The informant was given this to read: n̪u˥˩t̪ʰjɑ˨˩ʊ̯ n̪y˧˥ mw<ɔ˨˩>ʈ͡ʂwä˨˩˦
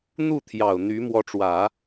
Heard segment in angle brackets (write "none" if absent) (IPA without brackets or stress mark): ɔ˧˥